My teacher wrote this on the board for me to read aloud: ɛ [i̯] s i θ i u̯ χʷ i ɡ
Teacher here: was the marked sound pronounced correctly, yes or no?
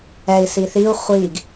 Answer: yes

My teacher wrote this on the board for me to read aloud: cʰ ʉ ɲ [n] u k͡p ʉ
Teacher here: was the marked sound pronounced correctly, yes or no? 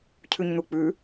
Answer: yes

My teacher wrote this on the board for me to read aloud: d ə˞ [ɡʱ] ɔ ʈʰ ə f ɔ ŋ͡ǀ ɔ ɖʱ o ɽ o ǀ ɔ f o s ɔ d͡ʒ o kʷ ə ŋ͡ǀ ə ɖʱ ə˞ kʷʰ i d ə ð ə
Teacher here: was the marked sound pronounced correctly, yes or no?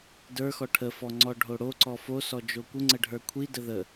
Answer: no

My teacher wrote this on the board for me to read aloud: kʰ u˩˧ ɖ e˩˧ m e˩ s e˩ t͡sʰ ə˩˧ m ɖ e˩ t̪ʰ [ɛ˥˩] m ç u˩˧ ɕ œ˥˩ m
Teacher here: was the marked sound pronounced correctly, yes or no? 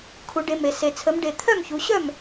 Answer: no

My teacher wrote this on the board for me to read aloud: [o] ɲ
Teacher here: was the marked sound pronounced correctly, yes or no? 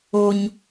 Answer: yes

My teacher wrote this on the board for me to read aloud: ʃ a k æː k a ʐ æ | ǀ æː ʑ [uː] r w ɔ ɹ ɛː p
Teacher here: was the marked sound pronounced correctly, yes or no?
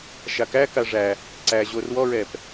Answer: no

